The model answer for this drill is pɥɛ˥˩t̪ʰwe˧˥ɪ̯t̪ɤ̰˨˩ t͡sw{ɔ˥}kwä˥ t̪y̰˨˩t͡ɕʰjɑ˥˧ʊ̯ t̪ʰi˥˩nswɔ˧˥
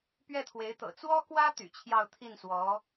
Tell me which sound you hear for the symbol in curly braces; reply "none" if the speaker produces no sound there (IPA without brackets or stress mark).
ɔ˥